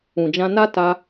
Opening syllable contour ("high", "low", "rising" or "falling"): low